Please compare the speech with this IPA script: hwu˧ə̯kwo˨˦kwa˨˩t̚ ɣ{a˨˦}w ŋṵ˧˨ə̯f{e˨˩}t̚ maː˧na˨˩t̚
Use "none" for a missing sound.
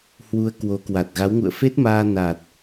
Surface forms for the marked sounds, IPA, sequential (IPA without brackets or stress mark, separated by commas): a˨˦, e˦˥